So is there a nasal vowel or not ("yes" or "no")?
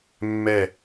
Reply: no